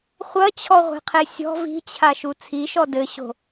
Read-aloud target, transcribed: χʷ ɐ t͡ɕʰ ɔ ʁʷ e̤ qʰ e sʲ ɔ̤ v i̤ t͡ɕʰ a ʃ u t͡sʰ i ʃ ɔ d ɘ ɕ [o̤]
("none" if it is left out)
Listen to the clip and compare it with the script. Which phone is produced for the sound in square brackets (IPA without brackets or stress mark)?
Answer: o̤